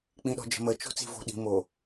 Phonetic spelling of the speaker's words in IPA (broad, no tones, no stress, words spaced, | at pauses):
k͡pĩɗɔ̤d͡ʒə̤mə t͡ʃo̤t͡si̤vo̤ɗi̤ mo